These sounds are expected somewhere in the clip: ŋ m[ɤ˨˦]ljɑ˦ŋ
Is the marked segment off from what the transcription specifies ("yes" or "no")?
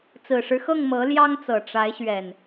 no